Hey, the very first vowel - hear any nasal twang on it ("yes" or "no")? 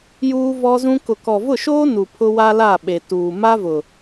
no